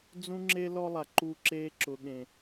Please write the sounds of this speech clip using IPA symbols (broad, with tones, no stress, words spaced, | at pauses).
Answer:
d͡zũ˦ŋ͡ǁe˦ lɔ˦lˠa˨ǃu˦˨ǁeː˦ ǁʊ˨ɠẽ˨